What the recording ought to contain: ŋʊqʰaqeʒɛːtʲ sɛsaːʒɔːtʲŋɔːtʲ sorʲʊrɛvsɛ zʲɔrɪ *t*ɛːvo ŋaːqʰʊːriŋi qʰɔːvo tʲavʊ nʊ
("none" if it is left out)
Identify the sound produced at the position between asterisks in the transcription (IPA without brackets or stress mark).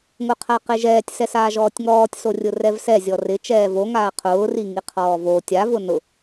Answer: t͡ʃ